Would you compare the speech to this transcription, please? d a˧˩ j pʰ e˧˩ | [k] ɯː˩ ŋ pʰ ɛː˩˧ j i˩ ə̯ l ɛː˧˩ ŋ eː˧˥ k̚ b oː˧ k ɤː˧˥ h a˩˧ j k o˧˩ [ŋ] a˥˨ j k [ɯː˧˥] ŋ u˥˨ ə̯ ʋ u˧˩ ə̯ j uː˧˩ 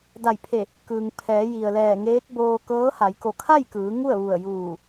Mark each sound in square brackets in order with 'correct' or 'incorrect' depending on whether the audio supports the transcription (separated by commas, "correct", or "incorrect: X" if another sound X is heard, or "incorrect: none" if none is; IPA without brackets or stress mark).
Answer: correct, incorrect: kʰ, incorrect: ɯː˩˧